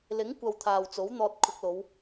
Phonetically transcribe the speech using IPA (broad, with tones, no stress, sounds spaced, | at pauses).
l ɪ˨˥ ŋ kʷ ɐ˨ w t̪ʰ aː˨ w t͡s o˨˥ w n̪ ɔː˧ t̚ kʰ ʊ˧ k̚ l o˨˧ w